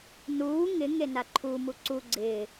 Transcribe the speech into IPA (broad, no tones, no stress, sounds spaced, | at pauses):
n uː ŋ ɪ ŋ e n a ǃʰ u m u ǀ u ɡ͡ǀ ɪː